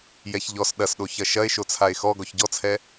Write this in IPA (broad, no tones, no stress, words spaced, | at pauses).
jɛçʎɔs ɗɐsɗo çɐʃɐe̯ ʃot͡sʰae̯xɔ ɡɔçɟɔt͡sʰɛ